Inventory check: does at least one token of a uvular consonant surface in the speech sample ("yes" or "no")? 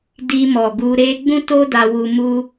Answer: no